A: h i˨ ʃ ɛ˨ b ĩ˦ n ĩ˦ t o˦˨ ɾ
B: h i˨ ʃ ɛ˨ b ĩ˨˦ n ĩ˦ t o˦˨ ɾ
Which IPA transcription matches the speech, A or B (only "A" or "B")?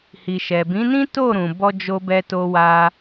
B